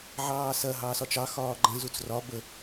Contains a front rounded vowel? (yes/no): no